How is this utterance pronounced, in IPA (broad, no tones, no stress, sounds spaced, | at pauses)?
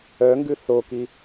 œ ŋ ɡ ʉ θ o k i